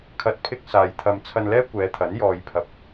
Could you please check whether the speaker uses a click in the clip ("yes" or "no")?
no